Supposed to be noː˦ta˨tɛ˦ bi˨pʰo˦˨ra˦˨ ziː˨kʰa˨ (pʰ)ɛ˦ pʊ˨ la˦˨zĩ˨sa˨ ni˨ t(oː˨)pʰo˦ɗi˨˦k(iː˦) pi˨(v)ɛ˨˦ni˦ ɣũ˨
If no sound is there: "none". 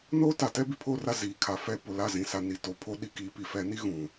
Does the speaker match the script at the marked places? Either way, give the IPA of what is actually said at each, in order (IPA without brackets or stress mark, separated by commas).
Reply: f, o˨, iː˨˦, f